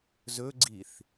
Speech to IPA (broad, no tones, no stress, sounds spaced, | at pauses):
z ɵ ɡ͡ǀ i θ